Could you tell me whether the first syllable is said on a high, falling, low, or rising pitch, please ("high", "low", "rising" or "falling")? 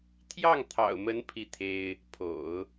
falling